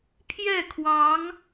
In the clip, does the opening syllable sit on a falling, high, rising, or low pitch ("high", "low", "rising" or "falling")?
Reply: falling